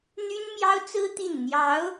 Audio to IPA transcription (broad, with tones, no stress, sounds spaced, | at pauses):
n̪ y˥ n m j ɑ˥ ʊ̯ t͡s ɹ̩˥ t̪ i˥˩ n n̪ j ɑ˧˥ ʊ̯